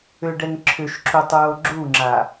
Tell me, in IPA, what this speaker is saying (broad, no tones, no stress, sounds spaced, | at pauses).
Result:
ʏ ɖ ɛ ŋ ǁʰ ʏ ʃ ǁ u tˤ ɹ o ɡ͡ǁ u ŋ͡ǁ a